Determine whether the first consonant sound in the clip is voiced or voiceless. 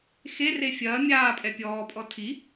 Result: voiceless